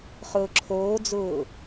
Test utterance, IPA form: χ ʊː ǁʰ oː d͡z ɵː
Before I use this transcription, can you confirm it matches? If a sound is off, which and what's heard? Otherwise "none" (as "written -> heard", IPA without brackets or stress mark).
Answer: ɵː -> ʊː